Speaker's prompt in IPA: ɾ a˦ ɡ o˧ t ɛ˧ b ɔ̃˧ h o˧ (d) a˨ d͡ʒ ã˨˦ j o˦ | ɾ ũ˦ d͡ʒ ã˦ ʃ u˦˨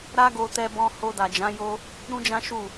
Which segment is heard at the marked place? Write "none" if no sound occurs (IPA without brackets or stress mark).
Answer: d